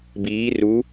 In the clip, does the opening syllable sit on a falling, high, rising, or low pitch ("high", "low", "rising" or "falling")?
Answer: rising